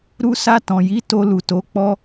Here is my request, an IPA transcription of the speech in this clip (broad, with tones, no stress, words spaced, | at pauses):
ɾu˧sa˧ tɔ̃˨ji˨˦ to˧lu˨to˨˦ k͡pɔ˦